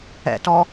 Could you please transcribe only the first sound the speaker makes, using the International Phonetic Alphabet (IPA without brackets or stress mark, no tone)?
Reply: ɛ̰